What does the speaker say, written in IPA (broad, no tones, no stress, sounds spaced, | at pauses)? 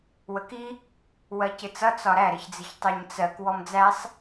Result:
w ə k i | w ɜ c ɪ t͡s ʌ t͡s ɒ ɾ æ ɾ ɪ ç d͡z ɪ ç tˤ ɜ ɲ t͡s ɜ k w ɔ m d͡z æ sˤ